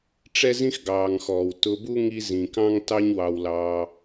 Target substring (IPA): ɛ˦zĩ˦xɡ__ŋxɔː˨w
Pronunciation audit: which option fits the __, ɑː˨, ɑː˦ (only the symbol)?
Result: ɑː˨